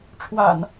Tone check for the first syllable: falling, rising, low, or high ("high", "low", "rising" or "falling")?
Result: low